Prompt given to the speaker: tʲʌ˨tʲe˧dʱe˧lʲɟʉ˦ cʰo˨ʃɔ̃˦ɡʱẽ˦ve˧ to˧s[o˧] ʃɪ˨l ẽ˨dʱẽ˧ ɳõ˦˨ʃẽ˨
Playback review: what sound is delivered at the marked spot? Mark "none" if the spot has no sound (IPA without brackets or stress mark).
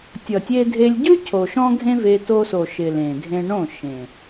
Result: o˨